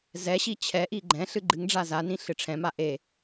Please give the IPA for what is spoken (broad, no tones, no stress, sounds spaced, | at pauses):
z ɛ ɕ i t͡ɕʰ ɛ ʔ i ɡ͡ǃ ɛ̃ ɬ ɨ ɡ͡ǃ ɨ ŋ ɖ͡ʐ a z a n ĩ ɬ ɨ ʈ͡ʂʰ ɛ̃ m a ʔ e